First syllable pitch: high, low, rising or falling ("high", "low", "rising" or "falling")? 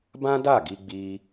high